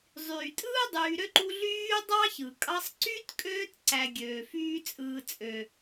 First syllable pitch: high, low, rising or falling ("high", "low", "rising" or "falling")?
low